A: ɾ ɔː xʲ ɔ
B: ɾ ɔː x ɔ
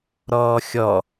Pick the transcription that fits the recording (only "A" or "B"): A